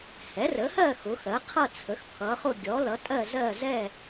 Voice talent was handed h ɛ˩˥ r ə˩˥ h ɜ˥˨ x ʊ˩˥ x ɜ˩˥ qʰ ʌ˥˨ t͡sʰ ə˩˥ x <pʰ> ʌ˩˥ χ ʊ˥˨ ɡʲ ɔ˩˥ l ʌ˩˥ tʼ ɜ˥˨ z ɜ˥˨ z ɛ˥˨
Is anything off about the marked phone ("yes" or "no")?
no